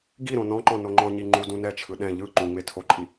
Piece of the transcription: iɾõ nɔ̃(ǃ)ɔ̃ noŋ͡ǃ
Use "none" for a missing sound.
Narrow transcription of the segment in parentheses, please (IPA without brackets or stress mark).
ǃ